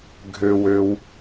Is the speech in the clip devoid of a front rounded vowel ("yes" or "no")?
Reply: no